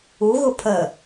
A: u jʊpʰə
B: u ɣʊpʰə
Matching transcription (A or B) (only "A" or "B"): B